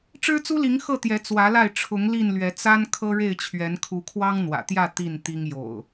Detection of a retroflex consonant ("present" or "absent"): present